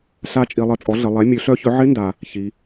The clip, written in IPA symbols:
ɬ a˧˥ t͡ʃʼ i˩˧ lˠ ə˩˧ t͡sʼ ɔ˩˥ ɮ ə˩˧ lˠ ɛ˩˥ mʲ ø˩˥ ɬ œ˧˥ ç œ˩˥ ʕ ɪ˧˥ n d a˩ | ç i˩˧

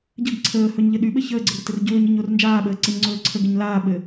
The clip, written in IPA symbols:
ɟ ə ɡ ǀʰ əː h ɵ ɲ ʎ ɘ ɗ y ɓ ɘ ç əː ɡ͡ǀ ə r t ɘ r ɟ ɵː ɲ ɘ ɲ o r n d͡ʒ aː ɓ əː ǀ ɘ ɲ ŋ͡ǀ ɵː ǀʰ ə ɡ ə ɲ l aː ɓ ɘ

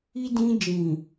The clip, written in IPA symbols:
i˧ d ĩ˧ d͡ʒ ĩ˨

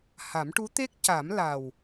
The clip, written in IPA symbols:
h a˨˩˦ m ʈ u˧˥ t̪ e˦˥ k̚ c a˨˩˦ m l a˨˩ w

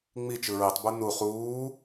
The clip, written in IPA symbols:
ŋ͡m i t͡ʃ ɯ ɹ i tˤ b u n u χ uː

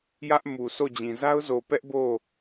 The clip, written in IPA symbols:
j ä˦ ʔ m u˨ s o˦˨ d͡ʑ ĩ˨ z a˦ ʊ̯ z o˨ p ɛ˦ ʔ b o˦˨

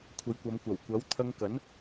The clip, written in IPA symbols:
kʷʰ ɐ˨˧ j kʷ ɐ˨˧ m kʷ ɐ˨˩ w kʷ ɐ˨˥ w t̪ʰ ɐ˧ ŋ k ɐ˨˥ n

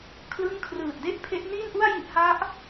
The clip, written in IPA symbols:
kʰ l ɯ˥˩ ŋ kʰ r ɯː˨˩ t̚ d e˥˩ ʔ pʰ e˦˥ ʔ n iː˥˩ n ʔ u˥˩ a̯ j i˦˥ ʔ h a˦˥ ʔ

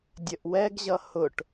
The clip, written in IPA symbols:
dʲ ə ʔ w ɛ ɡ ʑ ʌ h ʊ ʈ

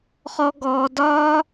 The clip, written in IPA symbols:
χ ɔ˧ ɡ ɔː˧ d ɒː˦

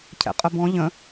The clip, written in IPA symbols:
cʰ ɛ̰ qʼ ə b ɔ̃ ʎ ə̃

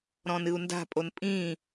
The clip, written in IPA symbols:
ɾ ɔ̃ n ɨ u̯ n d a̤ pʼ o n pʼ ĩ

